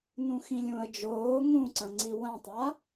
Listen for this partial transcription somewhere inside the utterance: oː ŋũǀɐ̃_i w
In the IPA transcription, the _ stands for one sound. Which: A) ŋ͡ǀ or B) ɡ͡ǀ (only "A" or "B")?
A